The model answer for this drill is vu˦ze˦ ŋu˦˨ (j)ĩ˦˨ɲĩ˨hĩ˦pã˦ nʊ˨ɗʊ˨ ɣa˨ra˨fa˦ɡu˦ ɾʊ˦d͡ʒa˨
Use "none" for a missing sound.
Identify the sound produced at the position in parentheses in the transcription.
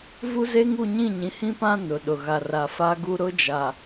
ɲ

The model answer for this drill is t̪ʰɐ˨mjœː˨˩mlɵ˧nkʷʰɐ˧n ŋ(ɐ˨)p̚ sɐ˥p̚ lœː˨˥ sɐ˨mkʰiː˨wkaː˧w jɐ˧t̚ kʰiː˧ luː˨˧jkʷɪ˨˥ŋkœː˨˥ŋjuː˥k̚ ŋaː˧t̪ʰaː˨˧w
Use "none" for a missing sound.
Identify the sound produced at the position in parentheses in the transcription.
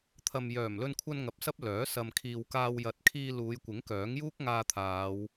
ɐ˨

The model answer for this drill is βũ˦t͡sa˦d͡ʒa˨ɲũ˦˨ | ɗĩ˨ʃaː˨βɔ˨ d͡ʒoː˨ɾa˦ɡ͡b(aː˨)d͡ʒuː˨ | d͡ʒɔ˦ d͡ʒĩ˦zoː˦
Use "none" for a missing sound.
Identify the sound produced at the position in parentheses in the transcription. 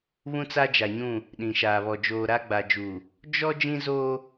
a˨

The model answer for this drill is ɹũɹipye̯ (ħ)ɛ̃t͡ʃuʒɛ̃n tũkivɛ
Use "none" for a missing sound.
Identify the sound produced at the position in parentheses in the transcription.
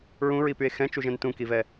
x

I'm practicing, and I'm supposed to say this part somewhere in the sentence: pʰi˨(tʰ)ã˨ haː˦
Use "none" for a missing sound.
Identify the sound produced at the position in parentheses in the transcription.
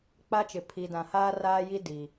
d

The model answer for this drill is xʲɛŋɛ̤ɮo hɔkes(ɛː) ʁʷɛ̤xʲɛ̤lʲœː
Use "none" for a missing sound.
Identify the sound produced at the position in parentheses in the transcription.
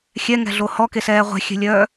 ɛː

